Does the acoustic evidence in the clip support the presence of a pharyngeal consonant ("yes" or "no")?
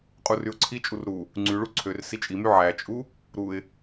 yes